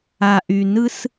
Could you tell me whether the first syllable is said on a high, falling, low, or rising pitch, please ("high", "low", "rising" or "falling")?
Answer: low